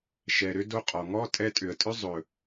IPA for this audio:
ʃ ɛ˨ ɾ ʏ˧ d o˧ qʼ ɔ˨ ŋ ɔ˦ tʼ ɛ˧ tʼ ʏ˨ ə̯ tʼ ʏ˦ zˤ ɵ˨

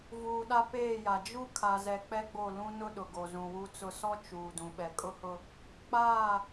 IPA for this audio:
v uː˨ ɗ a˦ p eː˦˨ j a˨ d͡ʒ u˦ kʰ a˨ z ɛ˨ k͡p ɛ˦ ɡ͡b o˦˨ l ũ˦ n ʊ˦ ɗ ʊ˨ ɡ o˨ z ũ˨ w u˦ t͡s ʊ˦ s ɔ˦ t͡ʃ uː˨ d ũ˨ ɓ ɛ˨ kʼ ʊ˦ h ʊ˦ | k͡p aː˦˨

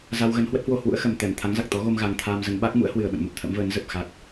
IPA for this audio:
z a˧ w ɣ ə˨˦ n h w ə˦˥ t̚ h w o˧ h w ṵ˧˥ ə̯ x ə˨˩ m t̪ ɛ˧˩ m t̪ʰ a˨˦ ŋ z a˨˩ k̚ t̪ ɔ˨˦ ɣ o˧ m ɣ a˨˩ ŋ t̪ʰ aː˧ m z ə˨˦ n ɓ a˦˥ k̚ m ṵ˧˥ ə̯ h w ɨ˨˩ ə̯ ɓ ə̰˧˨ n m ə˦˥ p̚ t̪ʰ ə̰˧˥ m v əː˨˦ n z ə˨˩ p̚ x a˦˥ k̚

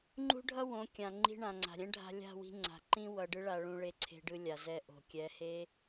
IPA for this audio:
ŋ͡ǃ ṳ˦ ɖʱ ʌ˦ w õ˨˦ kʲ ã˨ ŋ͡ǃ i̤˧ ɳ ã˨ ŋ͡ǀ a̤˨ ɾʲ ɛ̃˦ ɖʱ a̤˧ lʲ a̤˦˨ w i̤˧ ŋ͡ǀ a̤˨ ǃ ĩ˦ w ʌ˧ ɖ ɯ˦ ɭ a˧ ɭ ũ˧ ɭ e˧ ǀʰ e̤˧ ɖ ɯ˧ lʲ a˨ z ɛ˧ ʔ o̤˨ kʲ ɛ˨˦ h e˦

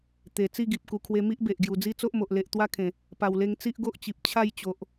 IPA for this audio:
t̪ e˨˩ t͡s i˥˧ ɡ i˨ p̚ k u˨˩ kʰ w e˧ m i˦ ʔ b e˨ ʔ ɡ j u˨˩ d͡z i˦ t͡s o˦ ʔ m o˨ ʔ l e˨ ʔ t̪ w a˦ kʰ ẽ˨˩ | p a˨˩ w l e˧ ŋ t͡s i˦ ʔ ɡ o˦ ʔ t͡ɕ i˨ p̚ t͡ɕʰ a˥˧ j t͡ɕ o˨ ʔ

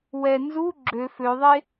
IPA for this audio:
w ɛ n z u ɡ͡ǁ ø f ø ðˤ e

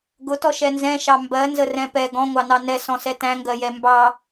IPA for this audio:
ɡ ʊ t ɔ ʃ ɛ n z ɛ̃ ʃ ɑ m b ɜ n z ə r ɛ̃ p ɛ ɡ ɔ̃ ŋʷ ɑ n ɑ n ɛ s ɔ̃ s ɛ t æ̃ ŋ ɡ ɜ j ɛ m b ɑ

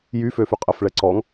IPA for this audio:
j y f ø f y qʼ ə f ɭ ɛ ǀ ɔ ŋ

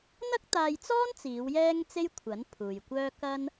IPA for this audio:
n̪ ɐ˥ k̚ t̪ aː˧ j t͡s ɔː˥ n t͡s iː˨˧ w j ɛː˥ ŋ t͡s e˥ j kʷʰ ɐ˨˥ n pʰ uː˨ j kʷ œː˥ k ɐ˥ n

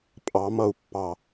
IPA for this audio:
pʼ ɑ m ʌ u̯ pː ɑ

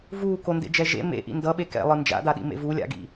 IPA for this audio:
v uː k o n d ḛ d͡ʒ ɛ ʒ ḛ m ḛ ʔ ḭ n d ʌ ɓ e k ɛ̰ lˠ ɯ n d͡ʒ a̰ d a ɗ ḭ m ḛ v u lʲ a̰ ɡ ḭ

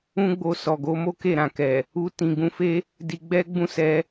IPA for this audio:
ũ˦ ɡ͡b o˧ s ɔ˨ ɡ o˨˦ m o˦ k e˦˨ ɾ ã˨ k ɛ˨ | u˧ t ĩ˨ ɡ ũ˧ f e˦ | d i˧ ɡ͡b ɛ˦ ɡ͡b ũ˦ s ɛ˧

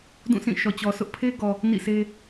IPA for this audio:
d ũ˦˨ sʰ ĩ˦˨ ʃ ɔ˨ t͡ɕ ɔ˨ sʰ ʊ˦ ʔ pʰ e˦ ɡ ɔ˨ | n ḭ˦˨ sʰ e˦

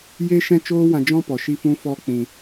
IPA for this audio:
j e˦ ʃ ɛ̃˦ t͡ʃ oː˦ w ã˧ d͡ʒ ɔ̃˦ p ɔ˨ ʃ i˦˨ f ũ˦ f ɔ˦ k͡p ĩ˧

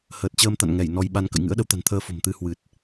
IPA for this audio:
h əː˨˩ t̚ t͡ɕ əː˧ m t̪ a̰˧˨ n ŋ ɛ˧˩ j n ɔ˧ j ɓ a˧ n k ə̰˧˨ j ŋ ɨ̰˧˥ ə̯ ɗ ə˨˦ w t̪ a̤˨˩ n t̪ʰ əː˧ f o̤˨˩ m t̪ ɨ˧ h w ɨ˨˩ t̚

